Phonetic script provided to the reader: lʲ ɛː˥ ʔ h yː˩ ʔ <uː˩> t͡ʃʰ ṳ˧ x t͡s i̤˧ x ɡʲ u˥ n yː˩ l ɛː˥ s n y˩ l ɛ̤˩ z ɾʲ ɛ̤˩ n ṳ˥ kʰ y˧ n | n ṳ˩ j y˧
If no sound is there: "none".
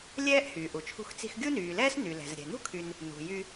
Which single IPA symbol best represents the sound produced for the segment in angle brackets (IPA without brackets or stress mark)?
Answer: u˩